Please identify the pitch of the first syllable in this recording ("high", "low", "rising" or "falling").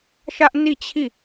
high